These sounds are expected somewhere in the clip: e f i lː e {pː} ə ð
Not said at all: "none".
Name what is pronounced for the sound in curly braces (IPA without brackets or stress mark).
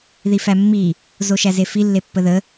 pː